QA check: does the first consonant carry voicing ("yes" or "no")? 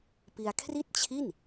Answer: no